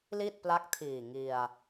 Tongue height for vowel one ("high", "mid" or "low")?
high